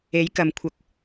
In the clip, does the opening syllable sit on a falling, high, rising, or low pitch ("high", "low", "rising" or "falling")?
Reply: rising